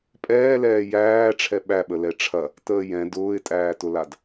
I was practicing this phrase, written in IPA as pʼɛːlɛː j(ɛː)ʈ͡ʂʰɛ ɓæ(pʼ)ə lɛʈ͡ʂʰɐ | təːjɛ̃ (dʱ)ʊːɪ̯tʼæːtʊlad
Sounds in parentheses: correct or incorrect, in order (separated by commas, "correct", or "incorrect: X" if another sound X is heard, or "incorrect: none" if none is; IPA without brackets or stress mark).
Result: incorrect: æː, incorrect: ɓ, incorrect: d